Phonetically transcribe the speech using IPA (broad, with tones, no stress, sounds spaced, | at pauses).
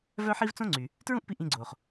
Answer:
v œ˥ ħ i˥ v t͡s õ˥ ŋ͡ǀ y˩ | t ɹ ũ˥ ʔ p i˧ ʔ ĩ˧ ɡ͡ǀ oː˩ χ